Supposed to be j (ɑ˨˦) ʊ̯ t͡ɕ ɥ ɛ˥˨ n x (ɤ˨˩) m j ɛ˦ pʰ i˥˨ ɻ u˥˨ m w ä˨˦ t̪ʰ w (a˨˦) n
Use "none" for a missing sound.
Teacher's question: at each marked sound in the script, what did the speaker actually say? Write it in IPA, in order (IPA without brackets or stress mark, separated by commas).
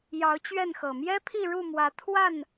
ɑ˨˦, ɤ˨˩, a˥˨